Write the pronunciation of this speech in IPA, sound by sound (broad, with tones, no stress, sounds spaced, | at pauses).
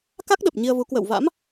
k a˦˥ k̚ ɗ ə˨˩ p̚ ɲ i˧ ə̯ v u˨˦ k w ə̰ː˧˨ w v a̰˧˥ m